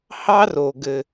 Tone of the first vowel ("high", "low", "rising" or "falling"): high